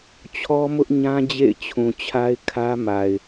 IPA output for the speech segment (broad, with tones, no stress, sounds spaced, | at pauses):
t͡ɕʰ ɔ˦ m ʊ˦ ʔ ɲ ã˦ d͡ʑ ḛ˦˨ ɪ̯ t͡ɕʰ ũ˨ t͡ɕʰ a˦ ɪ̯ kʰ ä˦ m a˨ ɪ̯